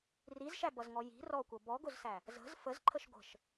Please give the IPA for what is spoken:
r i z ʃ æ b ʌ z ŋ ɔ j i̤ r ɔ kʷ ʌ b ɔ ɡ ʊ z s æ | z ə̤ z f ə z ǃʰ ə ʃ ɡʷ ə̤ ʃ

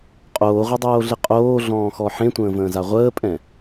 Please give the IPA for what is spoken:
qʼ oː ʁʷ e dˤ oː ɮ ɪ qʼ oː ɮ ɔ̃ː x ɔ ħ ẽ tʷ ə̃ː v ə̃ː z a ʁʷ əː pʼ ɛ̃

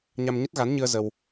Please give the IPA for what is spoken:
ɲ a˧ m ɲ ə˦˥ t̚ ɣ a˨˦ n ɲ ɨ˧ ə̯ z ə˧ w

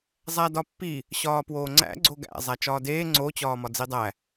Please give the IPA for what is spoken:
zˤ æ d ɒ pː i | ɕ ɒː p w oː ŋ͡ǀ æ̰ ɡ͡ǀ o ɡ æ̰ zˤ æ t͡ʃ ɒː d eː ŋ͡ǀ o t͡ɕ ɒː m ɒ d͡z i dˤ æ

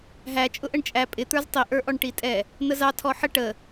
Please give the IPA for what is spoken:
ɦ æ t͡ʃʼ ʊ ʔ ə ɳ t͡ʃʼ æ pʼ ɪ t̪ ə˞ z tˤ i ʔ ə˞ ʔ ɔ ɳ ʈ i tʼ ɛ | n̪ ə z ɑ tʰ ɔ ħ ə ʈ ə

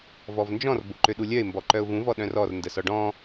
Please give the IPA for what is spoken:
v ɔ v n d͡ʒ ɔ̃ r b o ǃ ø ɗ u lʲ œ ɪ̯ m b ɔ ǃ œ ʊ̯ v ũ v ɔ ɗ œ̃ r ɔ r n d ə s ɔ ɖ ɔ̃

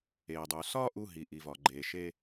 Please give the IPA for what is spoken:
eː˩ dˤ u˩ s ɒː˥ ʔ u˧ ɦ i˩ ʔ i˩ v ɒ˩ ɡ͡ǃ eː˩ ʃ e˧

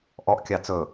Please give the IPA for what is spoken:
ʔ ɔ ʔ kʲ ɑ t͡s ɵ

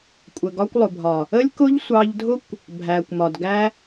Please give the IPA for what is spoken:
kʷʼ ə˨ ɡ ɒ˧ kʷ lˠ ʊ˨ bʱ ɒ˨ | ə˦ lʲ k ʊ˦ ʎ sʷ ɑ˧ ʎ dʱ ʊ˦ kʷ | bʱ æ˨ kʷ m ɒ˨ d ɡ æ˧

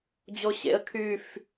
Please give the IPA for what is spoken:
d͡ʑ o ɕ ḛ ə̯ kʰ y f

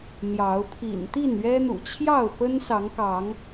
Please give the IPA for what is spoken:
n̪ j ɑ˨˦ ʊ̯ pʰ ḭ˨˩ n t̪ i˥˨ n ɥ ɛ˦ n̪ ṵ˨˩ t͡ɕʰ j ɑ˥˨ ʊ̯ p ə˦ n s ɑ˨˦ ŋ k ɑ˨˦ ŋ

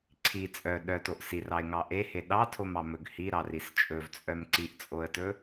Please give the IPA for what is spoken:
ǀʰ i t͡sʼ œ ɗ œ t o ʔ s i r ɑ ɪ̯ ŋ ɑ ʔ e h e ɗ ɑ tʰ o m ɑ m ɵ ɡ h i ɾ ɑ r i s t͡ʃʼ ɵ v t͡sʼ œ m ǀ i ʔ t͡sʼ o ə̯ t ɵ

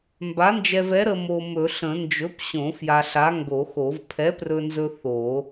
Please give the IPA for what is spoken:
m b a˨˥ n d͡ʒ ɛ˧ v ɛ˨˥ ɾ ə˧ m o˧ m ɵ˨˩˦ ɬ ə̃˨˩˦ n d͡ʒ ɵ˨˥ p ɕ õ˨˩˦ f j a˧ ɬ a˨˥ ŋ ɡ o˨˩˦ x o˨˩˦ v pʰ ɛ˨˥ p r ɵ˧ n z ɵ˧ θ o˨˩˦

